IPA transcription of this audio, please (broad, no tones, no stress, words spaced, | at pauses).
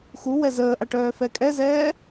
xuwɛ zəːʔaʈœːfɛ kʼɛzɛː